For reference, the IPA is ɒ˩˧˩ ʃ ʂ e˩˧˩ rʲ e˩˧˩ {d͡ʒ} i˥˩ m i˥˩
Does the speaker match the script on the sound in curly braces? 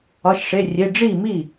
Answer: no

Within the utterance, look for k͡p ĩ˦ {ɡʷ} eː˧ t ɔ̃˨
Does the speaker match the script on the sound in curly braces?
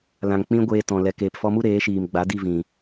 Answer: yes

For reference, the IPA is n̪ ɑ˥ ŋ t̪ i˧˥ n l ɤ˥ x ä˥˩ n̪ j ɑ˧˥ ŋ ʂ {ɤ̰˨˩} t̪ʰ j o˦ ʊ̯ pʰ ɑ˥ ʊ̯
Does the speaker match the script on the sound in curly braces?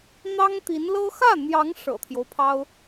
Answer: yes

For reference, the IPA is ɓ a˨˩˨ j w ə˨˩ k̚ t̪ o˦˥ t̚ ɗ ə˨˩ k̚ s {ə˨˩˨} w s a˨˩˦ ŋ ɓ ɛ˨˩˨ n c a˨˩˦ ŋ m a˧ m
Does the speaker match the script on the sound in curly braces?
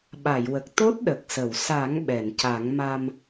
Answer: yes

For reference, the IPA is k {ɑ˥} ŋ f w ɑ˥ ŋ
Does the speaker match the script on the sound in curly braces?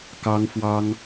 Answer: yes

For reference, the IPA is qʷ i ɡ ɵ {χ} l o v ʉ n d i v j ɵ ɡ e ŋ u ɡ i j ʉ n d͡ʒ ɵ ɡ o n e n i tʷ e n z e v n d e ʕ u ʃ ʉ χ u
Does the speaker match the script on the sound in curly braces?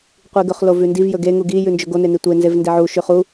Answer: yes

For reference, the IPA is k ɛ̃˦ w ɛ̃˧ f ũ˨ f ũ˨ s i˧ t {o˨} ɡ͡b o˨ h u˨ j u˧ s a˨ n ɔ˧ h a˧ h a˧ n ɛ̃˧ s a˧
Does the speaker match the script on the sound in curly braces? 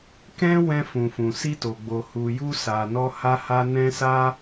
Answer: yes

